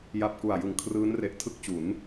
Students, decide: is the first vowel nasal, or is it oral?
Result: oral